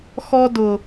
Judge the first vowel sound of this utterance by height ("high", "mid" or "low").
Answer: mid